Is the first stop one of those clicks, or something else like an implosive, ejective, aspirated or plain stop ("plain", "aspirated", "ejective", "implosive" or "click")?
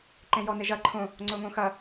click